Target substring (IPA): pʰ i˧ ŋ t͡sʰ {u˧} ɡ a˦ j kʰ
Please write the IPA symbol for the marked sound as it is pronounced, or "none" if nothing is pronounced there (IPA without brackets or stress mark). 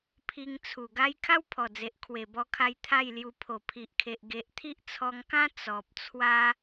u˨˩